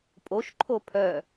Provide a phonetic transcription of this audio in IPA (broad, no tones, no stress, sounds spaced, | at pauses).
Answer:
pʼ o ʃ ǃʰ o pʰ œ